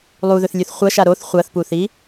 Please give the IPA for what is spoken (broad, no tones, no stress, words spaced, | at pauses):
lˠuðɵθlʲʉθ χʷɐʃa ɾoθ χʷɐθpuθi